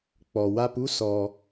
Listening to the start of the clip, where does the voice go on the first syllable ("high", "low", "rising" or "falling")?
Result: low